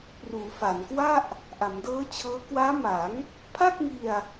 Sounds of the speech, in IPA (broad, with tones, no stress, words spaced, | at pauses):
pruː˩˦fa˩˦nkwa˥˩ʔ | ʔa˩˦mdɤː˦˥t͡ɕʰɤː˦˥ kwaː˦˥ma˩˦ŋ | pʰa˥˩k̚ŋi˧a̯